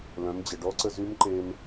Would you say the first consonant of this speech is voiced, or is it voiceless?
voiced